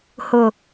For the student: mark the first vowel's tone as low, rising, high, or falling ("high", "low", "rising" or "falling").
low